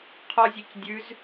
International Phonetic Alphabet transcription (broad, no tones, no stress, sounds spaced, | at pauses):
qʰ ɔ zʲ e c dʲ ʉ z